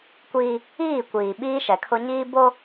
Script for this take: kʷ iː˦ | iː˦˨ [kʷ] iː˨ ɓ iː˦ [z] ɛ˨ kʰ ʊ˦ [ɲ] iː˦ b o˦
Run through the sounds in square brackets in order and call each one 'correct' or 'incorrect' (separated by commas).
correct, incorrect, correct